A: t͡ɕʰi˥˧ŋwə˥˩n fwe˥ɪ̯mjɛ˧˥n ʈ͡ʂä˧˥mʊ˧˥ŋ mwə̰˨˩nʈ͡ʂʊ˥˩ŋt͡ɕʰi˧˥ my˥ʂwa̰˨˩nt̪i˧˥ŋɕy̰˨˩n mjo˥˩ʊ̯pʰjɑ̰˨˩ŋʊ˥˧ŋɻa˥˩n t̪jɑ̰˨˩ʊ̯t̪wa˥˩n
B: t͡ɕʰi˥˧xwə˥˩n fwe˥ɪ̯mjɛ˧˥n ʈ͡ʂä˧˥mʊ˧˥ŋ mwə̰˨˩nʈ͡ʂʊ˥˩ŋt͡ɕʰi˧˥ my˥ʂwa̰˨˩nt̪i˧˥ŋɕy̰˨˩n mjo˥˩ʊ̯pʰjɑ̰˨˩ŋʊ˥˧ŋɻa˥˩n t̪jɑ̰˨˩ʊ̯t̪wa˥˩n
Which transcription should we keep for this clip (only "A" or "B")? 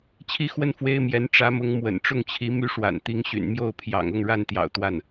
B